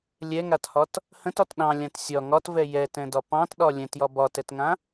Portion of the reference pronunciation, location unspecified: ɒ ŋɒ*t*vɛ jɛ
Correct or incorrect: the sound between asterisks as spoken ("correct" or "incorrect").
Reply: correct